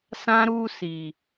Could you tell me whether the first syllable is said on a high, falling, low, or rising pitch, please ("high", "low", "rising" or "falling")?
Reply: high